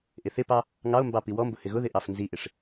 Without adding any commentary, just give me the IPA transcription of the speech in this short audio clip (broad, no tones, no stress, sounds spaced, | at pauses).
ʔ ɪ θ ɪ p ɑ | ŋ ɑ o̯ m b ɑ p i w ɔ m b ʊ h ɪ ɣ ʊ ð ɪ ʔ ɑ f n z i ʔ ɪ ʂ